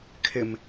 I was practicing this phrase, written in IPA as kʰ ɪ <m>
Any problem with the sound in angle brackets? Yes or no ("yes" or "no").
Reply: no